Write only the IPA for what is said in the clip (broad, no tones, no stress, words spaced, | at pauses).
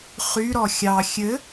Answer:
χyɾɔ xʲɑ xʲɘ